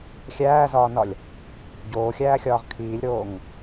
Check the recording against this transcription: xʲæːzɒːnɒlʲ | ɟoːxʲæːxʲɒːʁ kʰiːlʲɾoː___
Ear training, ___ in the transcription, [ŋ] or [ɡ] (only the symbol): ŋ